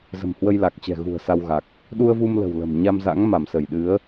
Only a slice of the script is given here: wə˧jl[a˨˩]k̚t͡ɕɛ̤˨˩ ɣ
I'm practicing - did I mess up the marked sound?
no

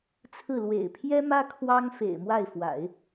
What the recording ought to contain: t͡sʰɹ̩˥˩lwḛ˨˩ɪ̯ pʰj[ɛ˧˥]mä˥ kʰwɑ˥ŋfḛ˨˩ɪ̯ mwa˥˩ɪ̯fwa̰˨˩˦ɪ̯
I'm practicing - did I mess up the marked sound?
yes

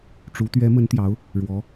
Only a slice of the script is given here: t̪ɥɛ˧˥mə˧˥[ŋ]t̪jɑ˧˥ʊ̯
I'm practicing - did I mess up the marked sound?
yes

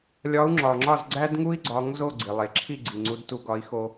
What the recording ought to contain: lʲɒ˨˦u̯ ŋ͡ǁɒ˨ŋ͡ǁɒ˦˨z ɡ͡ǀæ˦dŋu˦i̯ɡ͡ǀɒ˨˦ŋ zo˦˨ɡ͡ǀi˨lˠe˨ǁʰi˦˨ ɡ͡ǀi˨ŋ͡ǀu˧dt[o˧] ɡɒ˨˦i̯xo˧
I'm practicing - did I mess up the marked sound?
yes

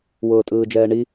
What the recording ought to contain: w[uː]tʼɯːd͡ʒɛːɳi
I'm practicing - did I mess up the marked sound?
yes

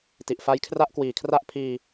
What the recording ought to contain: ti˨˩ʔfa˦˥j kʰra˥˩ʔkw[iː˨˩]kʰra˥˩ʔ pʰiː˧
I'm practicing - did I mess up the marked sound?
no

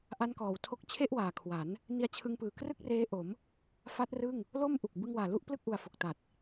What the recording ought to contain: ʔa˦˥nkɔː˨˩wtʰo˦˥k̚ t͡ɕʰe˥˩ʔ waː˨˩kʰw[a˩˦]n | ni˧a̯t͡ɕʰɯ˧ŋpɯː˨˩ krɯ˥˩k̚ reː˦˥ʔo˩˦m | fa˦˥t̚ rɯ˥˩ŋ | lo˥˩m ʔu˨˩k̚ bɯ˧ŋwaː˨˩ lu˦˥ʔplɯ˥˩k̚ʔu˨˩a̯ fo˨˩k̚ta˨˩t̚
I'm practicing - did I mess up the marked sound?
no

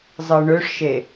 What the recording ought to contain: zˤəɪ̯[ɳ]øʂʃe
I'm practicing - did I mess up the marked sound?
no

